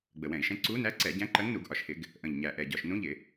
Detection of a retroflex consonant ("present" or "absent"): absent